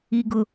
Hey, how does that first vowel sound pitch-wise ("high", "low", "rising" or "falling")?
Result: low